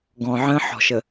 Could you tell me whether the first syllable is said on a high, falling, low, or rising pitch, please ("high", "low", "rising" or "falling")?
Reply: low